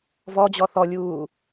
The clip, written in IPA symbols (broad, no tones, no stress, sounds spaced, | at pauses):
v ɔ d͡ʑ ɔ θ ɔ lʲ uː